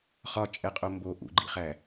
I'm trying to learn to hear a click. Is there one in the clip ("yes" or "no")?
yes